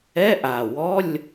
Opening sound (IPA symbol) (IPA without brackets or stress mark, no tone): ɛ